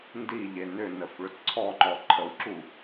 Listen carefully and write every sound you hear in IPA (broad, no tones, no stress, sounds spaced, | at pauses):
n d i ʎ e n ʏ n ə f ɭ ʏ t ǀʰ ɔ ŋ͡ǃ ɔ ǃʰ ə w ǁ u